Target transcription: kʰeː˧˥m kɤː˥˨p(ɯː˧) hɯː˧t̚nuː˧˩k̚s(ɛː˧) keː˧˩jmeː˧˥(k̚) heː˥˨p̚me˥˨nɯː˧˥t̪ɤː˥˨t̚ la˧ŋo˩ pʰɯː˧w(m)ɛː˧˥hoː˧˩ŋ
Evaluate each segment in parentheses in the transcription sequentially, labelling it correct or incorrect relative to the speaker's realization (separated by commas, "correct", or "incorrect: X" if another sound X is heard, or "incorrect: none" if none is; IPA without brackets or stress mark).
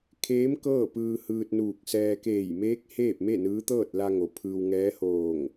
correct, correct, correct, incorrect: ŋ